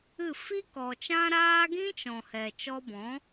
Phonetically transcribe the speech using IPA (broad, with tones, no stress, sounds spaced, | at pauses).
ɨ˦˨ f i˦ k ɔ˨ t͡ʃ ã˦ ɾ aː˦ ɡ ĩ˦ t͡ʃ ɔ̃˨ h ɛ˨ t͡ʃ ɔ˧ b ɔ̃˨˦